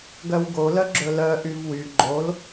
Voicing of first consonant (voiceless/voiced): voiced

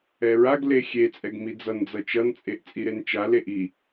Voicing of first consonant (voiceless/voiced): voiced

